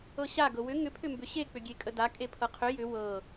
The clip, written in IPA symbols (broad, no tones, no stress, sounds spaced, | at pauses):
ɤ ɕ a ɡ ɤ w ʏ ŋ ʏ pʰ ʏ m b ʏ ɕ e k͡p ʏ ɡʲ e kʼ ə d a kʼ e pʰ ɤ qʰ ʏ j ʏ w ɤ